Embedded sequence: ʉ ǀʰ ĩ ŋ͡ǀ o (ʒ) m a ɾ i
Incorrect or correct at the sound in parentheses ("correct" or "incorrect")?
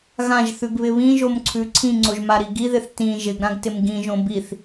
correct